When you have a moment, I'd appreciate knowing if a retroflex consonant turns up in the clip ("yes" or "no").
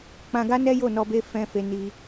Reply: no